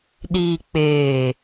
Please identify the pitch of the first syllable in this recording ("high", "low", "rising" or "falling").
low